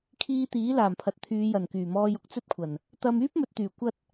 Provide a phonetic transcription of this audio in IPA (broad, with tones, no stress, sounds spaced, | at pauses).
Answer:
kʰ iː˧ t̪ iː˨˥ l aː˨˩ m pʰ ɐ˨ t̚ t̪ʰ yː˨˧ j ɐ˨˩ n k yː˨˩ m ɔː˧ j ʊ˧ k̚ t͡s ɵ˥ t̚ kʷʰ ɐ˨˩ n | t̪ ɐ˧ m yː˥ p̚ m ɵ˨ t̚ t̪ yː˨˩ kʷ ɐ˥ t̚